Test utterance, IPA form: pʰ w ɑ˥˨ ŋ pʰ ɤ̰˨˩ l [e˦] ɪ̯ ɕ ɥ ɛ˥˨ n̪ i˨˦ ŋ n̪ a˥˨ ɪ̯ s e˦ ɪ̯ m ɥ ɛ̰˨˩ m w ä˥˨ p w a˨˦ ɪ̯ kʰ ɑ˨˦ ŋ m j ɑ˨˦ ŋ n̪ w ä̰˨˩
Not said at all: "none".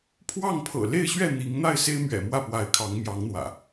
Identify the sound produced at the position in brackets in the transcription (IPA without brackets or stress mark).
e˥˨